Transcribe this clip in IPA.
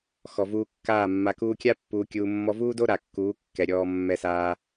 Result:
x ɔ˨ v uː˧ kː aː˦˨ mː a˨ k uː˧ kʲ a˦ pː uː˧ kʲ uː˧ mː ɔ˧ v uː˦ d o˦ ɾ a˨ kː uː˨˦ kː ɛ˨ ɾʲ ɔː˧ mː ɛ˧ s aː˧

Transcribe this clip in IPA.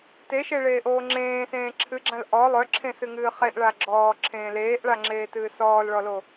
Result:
t e ʃ e ɭ eː ʔ oː ŋ͡ǁ ẽː s ẽː ǁʰ ɨ ɡ͡ǁ ã l ʔ ɔ lˠ œ ǁʰ ẽ s ɨ ŋ ɨː χ e ʔ ɭ a ɡ͡ǁ ɔː ǁʰ ẽː l eː ʔ ɭ a ŋ͡ǁ eː t ɨː s ɔː l ɭ ɔ l o

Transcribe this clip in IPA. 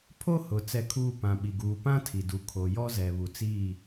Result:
pʰ o˦ h ʊ˨ t͡s ɛ˦ kʰ uː˦ p ã˨ ɓ i˨ ɡ uː˨ p ã˦ tʰ i˨ d u˨ kʰ o˨ j ɔ˦ z ɛ˨ β u˨ t͡s iː˦˨

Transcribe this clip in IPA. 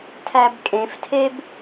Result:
tʰ æ b kʼ ẽ f tʰ e b

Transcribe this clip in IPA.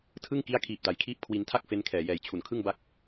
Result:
tʰ ɯ˥˩ ŋ k i˦˥ a̯ kʰ iː˨˩ p̚ d a˩˦ j kʰ iː˥˩ p̚ kʰ w i˧ n tʰ a˥˩ k̚ f e˦˥ n kʰ ɛː˨˩ j ɛː˨˩ j t͡ɕʰ u˨˩ n kʰ ɯ˥˩ ŋ b a˥˩ k̚

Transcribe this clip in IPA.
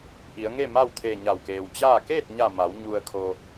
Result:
ʔ i˩˧ ə̯ ŋ e˥˨ m a˥˨ w t̪ʰ eː˧˩ ɲ a˧˩ w k eː˩ w t͡ɕ aː˥˨ k eː˥˨ t̚ ɲ a˧˩ m a˩˧ w ɲ u˩ ə̯ kʰ o˩

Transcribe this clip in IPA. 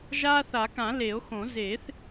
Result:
ʒ aː˦ θ a˨˩˦ k ã˨˩˦ l e˨˩˦ o̯ x õ˨˩˦ z eː˨˩˦ θ

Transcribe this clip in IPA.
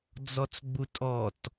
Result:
d͡z ɔ t͡s ɡ͡b u tʼ ɔ t

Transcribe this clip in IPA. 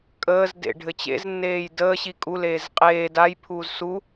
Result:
kʼ əː z d ḛ ɖʱ ɘ t͡ɕ ḛ z nː eː j d əː ɕ i kʼ u l eː z qʼ eː d a j pʰ uː z s u

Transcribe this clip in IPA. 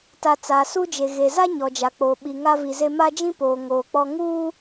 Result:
t a˨ t͡s aː˨ s u˦ d͡ʒ e˨ ɣ e˨ z a˦ ɲ ɔ˨ d͡ʒ a˨ k͡p o˨ ɓ i˨ ŋ a˦ v i˨ z e˦ m a˦ d͡ʒ ĩ˦ p oː˨ ŋ oː˨ k͡p ɔ˦ ŋ uː˦

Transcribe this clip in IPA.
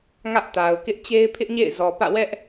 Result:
ŋ ä˦ ʔ t a˨ ʊ̯ k ɪ˦ ʔ t͡ɕ e˦ ɪ̯ pʰ ɪ˦ ʔ ɲ ḛ˦˨ ɪ̯ z ɔ˨ p ä̰˦˨ w ɛ˦ ʔ

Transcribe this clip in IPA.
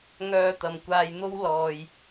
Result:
ŋ œː˧ t̪ ɐ˨ m kʷ aː˧ j n̪ o˥ w l ɔː˨ j

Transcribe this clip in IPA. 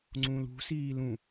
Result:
ŋ͡ǀ ũ l ṳ s iː l ũ

